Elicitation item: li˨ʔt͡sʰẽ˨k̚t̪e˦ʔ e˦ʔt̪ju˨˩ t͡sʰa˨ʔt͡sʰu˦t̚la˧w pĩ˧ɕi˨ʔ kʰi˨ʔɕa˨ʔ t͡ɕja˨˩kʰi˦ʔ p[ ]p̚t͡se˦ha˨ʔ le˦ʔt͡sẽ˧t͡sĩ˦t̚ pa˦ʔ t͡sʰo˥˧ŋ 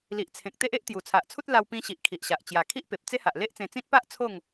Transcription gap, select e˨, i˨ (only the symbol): e˨